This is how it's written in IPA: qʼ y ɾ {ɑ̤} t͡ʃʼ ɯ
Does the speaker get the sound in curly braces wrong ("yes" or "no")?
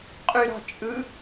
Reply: no